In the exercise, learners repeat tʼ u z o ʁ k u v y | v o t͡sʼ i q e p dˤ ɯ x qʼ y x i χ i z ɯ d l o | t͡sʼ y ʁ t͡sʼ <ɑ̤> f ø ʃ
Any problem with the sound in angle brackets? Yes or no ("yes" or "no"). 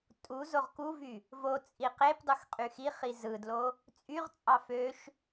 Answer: yes